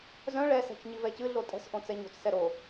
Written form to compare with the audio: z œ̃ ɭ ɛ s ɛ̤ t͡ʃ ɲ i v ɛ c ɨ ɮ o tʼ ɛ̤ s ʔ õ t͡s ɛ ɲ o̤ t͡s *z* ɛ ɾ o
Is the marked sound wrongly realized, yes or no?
yes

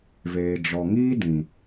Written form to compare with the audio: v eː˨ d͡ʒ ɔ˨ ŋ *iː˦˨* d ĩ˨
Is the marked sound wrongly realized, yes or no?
yes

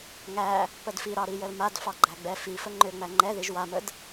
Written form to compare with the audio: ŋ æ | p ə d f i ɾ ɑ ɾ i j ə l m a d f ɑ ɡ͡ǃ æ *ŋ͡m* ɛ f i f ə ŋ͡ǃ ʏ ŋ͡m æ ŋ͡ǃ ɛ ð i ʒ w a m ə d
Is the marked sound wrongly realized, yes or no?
yes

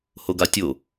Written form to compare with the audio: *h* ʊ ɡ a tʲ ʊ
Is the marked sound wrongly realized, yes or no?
no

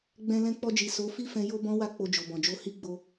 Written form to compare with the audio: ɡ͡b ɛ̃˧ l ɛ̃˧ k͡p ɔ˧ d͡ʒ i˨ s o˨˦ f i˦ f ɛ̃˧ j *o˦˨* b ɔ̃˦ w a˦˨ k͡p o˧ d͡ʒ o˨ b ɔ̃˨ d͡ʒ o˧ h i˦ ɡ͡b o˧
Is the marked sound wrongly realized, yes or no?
yes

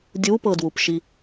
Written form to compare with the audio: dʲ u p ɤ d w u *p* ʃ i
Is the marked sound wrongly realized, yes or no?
no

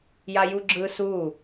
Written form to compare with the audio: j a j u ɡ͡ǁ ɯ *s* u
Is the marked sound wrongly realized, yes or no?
no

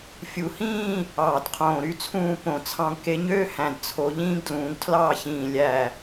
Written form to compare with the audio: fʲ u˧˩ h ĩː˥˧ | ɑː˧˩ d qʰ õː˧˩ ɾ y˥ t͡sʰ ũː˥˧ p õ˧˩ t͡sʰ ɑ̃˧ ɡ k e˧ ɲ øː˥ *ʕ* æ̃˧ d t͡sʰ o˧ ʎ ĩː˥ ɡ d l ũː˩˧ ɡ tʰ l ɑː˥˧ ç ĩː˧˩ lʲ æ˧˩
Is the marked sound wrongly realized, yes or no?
yes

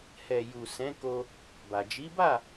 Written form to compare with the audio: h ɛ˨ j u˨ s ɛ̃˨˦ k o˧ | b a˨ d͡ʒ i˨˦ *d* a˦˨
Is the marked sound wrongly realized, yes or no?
yes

